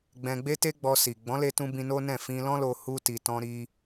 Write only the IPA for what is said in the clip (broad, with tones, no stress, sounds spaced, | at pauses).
ɡ͡b ɛ̃˧ ɡ͡b e˦ t e˦ ɡ͡b ɔ˧ s i˨ ɡ͡b ɔ̃˨˦ l e˧ t ũ˧ b ĩ˧ n o˦ n ɛ̃˦˨ f ĩ˧ l ɔ̃˦ l o˧ h u˧ t i˨ t ɔ̃˧ ɾ i˦